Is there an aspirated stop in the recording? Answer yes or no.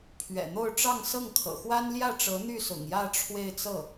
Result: yes